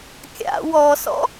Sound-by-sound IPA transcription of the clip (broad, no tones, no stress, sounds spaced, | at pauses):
kʲ a̰ w ɔ s ɔ̰